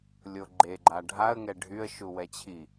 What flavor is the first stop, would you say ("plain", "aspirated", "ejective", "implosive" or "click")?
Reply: click